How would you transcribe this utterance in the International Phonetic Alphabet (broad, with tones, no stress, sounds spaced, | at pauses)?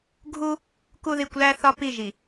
ɡʱ u˦ | k u˦ ð i˦˨ kʷ l æ˦ θ ɒ˦ p i˦˨ ʒ i˨